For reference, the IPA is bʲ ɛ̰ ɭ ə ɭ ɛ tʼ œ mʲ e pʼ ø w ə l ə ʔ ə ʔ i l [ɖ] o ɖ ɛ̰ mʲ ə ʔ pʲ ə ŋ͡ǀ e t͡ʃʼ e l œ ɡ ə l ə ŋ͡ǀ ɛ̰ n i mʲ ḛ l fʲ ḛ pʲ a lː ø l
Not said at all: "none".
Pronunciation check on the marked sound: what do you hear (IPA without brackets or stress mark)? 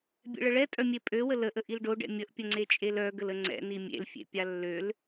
ɖ